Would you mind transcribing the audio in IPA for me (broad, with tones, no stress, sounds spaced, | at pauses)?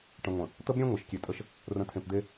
ʈ ə̃˨ ŋʷ ə̃˨ | t̪ ə˦ b ɾʲ ẽ˦ ŋʷ e˨ ʃ kʲ e˨ tʼ ə˦ ʃ | r ə̃˨ tʰ ẽ˨ p d̪ e˦